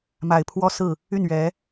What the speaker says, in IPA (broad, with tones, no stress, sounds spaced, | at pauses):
m a˨˩ ɪ̯ pʰ w ɔ˥ s ɹ̩˥˩ | y˥˩ n ɥ ɛ˧˥